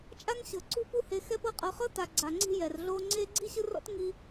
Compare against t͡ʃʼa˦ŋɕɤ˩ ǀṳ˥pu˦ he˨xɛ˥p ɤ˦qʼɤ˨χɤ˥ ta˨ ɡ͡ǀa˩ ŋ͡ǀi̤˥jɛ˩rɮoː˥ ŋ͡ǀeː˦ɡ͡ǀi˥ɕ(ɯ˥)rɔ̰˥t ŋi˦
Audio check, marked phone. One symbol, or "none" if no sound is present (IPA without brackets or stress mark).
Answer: ɯ˦